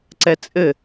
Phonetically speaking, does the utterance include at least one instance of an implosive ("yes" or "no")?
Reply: no